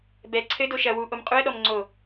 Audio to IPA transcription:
bɛ ǀʰɘ doʃɐ wu ʔomqʼuə̯ ɗɔmŋ͡ǀo

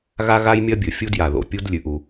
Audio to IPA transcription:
ɣa˥ɣa˥j mʲɐ˥bʲɵ˩ fʲu˥dja˩ðo̰˩ pʲu˥dlʲʉ˩ʔ u˩

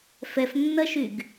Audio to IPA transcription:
fɛfnːɐʃyɡ

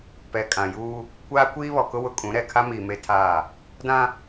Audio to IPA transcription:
pɛ˨kʼã˨juː˦ | kʷaː˦kʷiː˦βɔ˨kʊ˦ wʊ˦kʼũ˨˦ ɾɛ˨kʰa˦miː˨ me˦tʰaː˦˨ | dã˦

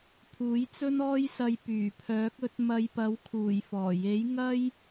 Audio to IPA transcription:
pʰuː˨˥jt͡sɵ˥nɔː˥jsɐ˧j pyː˨˩pʰœː˨˥k̚ɵ˨˥t̚ mɐ˨˧jpɐ˨˥wkʰuː˨˩j fɔː˨˩ je˨˥j ŋɐ˥j

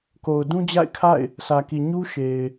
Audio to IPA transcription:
ko˨ʊ̯ dũ˦d͡ʑa̰˦˨ɪ̯kʰa̰˦˨ɪ̯ | sʰä˨ki˨ ɲu˦ʃe˨ɪ̯

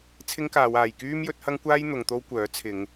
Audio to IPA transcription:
t͡sʰɪ˥ŋkaː˨˧waː˨j kyː˥mjɵ˨˥t̚hɐ˥ŋkʷaː˥j n̪ʊ˨˧ŋt̪o˥wkʷœː˨˥ t͡sʰɪ˨˧ŋ

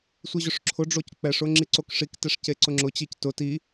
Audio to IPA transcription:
sʷiʑʊʂǁʰʊɖ͡ʐoc k͡pɛʂʊ ŋ͡ǁiǀokʂiktɛʂ ceǀʊŋ͡ǁʊt͡ɕic tʊ ti

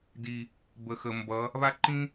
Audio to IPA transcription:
di˨ | bə˨xə˨mbʌ˨˦ | βa˦ǃĩ˦

